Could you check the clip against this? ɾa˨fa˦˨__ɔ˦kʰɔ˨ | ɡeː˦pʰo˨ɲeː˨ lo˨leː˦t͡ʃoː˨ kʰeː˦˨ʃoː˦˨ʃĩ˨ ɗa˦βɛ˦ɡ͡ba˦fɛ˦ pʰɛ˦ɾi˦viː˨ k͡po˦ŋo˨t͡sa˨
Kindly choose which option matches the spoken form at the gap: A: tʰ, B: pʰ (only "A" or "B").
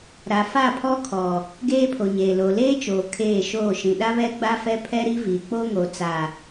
B